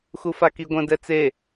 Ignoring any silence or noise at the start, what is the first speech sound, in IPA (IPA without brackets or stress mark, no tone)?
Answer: x